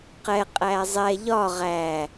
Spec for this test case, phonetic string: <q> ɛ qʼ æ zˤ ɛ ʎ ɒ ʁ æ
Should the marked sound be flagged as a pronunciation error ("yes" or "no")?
no